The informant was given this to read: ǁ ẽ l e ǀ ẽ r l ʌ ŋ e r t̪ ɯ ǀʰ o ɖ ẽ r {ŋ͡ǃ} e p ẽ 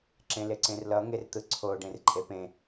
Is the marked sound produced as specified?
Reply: no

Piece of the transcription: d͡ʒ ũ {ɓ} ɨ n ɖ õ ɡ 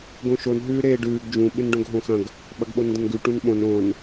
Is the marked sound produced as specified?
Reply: yes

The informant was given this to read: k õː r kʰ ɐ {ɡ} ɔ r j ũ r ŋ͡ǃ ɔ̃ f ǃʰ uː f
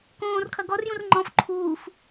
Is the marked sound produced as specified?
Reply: yes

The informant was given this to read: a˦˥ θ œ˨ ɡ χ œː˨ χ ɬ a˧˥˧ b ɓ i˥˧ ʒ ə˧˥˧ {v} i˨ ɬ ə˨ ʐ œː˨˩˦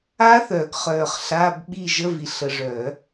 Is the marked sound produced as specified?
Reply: yes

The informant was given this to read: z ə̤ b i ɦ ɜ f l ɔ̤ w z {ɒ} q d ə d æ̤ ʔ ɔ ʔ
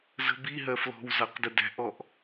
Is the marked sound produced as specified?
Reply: no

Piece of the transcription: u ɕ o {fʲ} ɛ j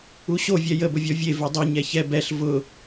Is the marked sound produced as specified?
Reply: no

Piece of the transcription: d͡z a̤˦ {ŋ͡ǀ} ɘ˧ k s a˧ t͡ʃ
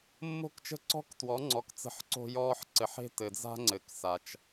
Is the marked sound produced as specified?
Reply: yes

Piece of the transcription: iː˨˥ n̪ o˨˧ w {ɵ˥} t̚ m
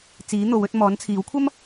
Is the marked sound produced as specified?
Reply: no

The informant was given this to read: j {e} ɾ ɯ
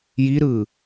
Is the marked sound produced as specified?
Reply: no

